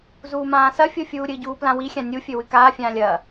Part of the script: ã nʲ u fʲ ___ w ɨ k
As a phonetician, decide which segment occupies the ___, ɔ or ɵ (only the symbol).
ɵ